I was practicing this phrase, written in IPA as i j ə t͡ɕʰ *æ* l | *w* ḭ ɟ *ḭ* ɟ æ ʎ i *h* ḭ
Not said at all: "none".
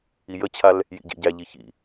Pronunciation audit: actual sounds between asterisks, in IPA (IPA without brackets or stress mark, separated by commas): a, j, ḛ, ç